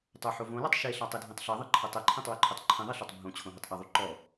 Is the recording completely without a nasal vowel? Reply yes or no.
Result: no